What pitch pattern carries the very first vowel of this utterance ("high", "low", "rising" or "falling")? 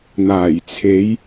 low